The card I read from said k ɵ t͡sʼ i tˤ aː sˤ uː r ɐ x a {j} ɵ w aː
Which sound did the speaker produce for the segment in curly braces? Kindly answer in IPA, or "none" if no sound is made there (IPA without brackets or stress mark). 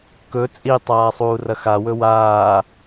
w